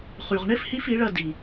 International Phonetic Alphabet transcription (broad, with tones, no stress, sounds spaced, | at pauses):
χ y˨ ʁ ɳ ɪ˦ f h i˦ f i˨˦ ɭ ɐ˧ d i˨